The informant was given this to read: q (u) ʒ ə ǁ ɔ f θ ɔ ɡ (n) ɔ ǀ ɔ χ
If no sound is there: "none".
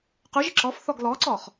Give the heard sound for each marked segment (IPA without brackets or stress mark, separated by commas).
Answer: u, l